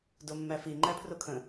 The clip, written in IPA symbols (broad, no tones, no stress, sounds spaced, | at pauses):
d o mː æ f i ŋ͡ǃ æ pʰ r o kʰ ə̃